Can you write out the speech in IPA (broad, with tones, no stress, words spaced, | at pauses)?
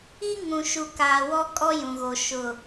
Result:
i˦ ŋũ˨ʃu˨kaː˨ wɔ˦ kʼɔ˦jũ˨ɣo˨ ʃʊ˨